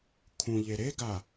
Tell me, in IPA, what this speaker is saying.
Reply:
kʰ ũ ʎ e ɾ e ɡ a

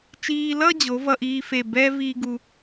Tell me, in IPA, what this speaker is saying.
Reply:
t͡ʃ iː˧ l ʌ˥˧ d͡ʑ o˩˧ v ʌ˧ ʔ iː˧ f e˧˩ b ɛ˥ v iː˥ ɡ u˧

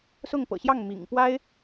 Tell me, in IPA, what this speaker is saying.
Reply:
s ʊ˥˩ ŋ p ɤ̰˨˩ ɕ j ɑ˥˩ ŋ m ḭ˨˩ ŋ p w a˥ ɪ̯

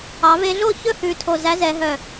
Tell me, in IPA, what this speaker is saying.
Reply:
ɑ˩˧ v e˧ ɮ o˥˧ ç ɵ˥˧ h ʉ˨˩ tʰ o˨˩ z æ˩˥ z ɛ˩˧ ɦ œ˨˩

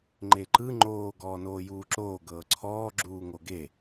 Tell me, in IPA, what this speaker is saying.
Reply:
ŋ͡ǃ e ǃ ɯ ŋ͡ǃ oː ɡ ɔː n oː j uː ǁ oː ɡ ɤː ǀʰ ɔː ɡ͡ǁ uː ŋ o ɡ e

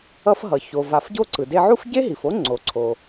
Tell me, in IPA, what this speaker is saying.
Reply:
ʌ˧ f ɦ ʌ˩ ç o˩ v a˩ f ɟ o˧ ǀ ɯ˩ d e˧ ʕ u˥ f ɟ e˥ ɦ i˩ f o˥ ŋ͡ǀ o˩ ǀʰ o˩

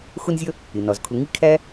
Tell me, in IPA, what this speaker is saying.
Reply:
x ʊ˦ n zʲ ʌ˦ | ɪ˩ n ɒ˩ z kʰ ʊ˨ ŋ i˥ kʰ æ˥

